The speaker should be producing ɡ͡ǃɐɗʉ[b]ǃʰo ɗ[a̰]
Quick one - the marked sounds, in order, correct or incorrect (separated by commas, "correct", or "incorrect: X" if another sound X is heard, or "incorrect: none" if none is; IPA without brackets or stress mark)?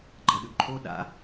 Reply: correct, correct